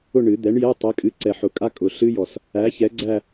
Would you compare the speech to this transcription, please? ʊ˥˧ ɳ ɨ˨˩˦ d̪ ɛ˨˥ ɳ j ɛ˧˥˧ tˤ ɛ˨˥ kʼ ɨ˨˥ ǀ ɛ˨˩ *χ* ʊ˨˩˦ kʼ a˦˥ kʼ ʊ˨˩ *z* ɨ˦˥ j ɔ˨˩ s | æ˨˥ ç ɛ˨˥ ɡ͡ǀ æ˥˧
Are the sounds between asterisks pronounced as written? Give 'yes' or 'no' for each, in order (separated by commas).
no, no